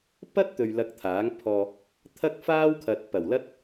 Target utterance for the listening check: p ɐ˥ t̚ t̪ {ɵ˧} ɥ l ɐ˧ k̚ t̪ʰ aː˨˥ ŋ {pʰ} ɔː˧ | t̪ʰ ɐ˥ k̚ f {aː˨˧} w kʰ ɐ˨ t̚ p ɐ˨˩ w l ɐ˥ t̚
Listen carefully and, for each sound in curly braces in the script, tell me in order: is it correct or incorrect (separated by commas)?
correct, correct, incorrect